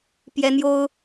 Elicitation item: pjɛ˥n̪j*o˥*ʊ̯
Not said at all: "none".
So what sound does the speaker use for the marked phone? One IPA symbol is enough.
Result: o˥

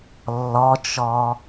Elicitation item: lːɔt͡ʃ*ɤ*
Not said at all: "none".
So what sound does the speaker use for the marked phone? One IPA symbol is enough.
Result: ɔ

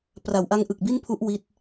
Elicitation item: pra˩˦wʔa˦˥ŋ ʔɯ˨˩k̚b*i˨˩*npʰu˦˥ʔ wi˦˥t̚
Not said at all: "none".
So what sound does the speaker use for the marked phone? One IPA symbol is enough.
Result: i˥˩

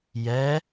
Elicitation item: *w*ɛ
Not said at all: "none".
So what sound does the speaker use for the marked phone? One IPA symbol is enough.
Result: j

